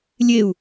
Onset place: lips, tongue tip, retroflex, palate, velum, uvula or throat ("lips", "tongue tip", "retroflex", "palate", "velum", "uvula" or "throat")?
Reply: tongue tip